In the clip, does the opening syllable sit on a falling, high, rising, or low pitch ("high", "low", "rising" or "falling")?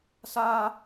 high